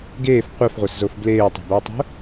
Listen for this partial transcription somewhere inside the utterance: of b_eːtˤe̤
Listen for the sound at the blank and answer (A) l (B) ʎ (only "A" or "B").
A